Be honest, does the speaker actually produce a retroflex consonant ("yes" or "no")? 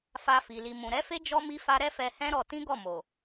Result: no